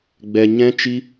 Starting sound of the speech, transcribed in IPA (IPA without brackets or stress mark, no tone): ɡ͡b